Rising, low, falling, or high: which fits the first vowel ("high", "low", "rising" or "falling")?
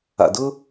low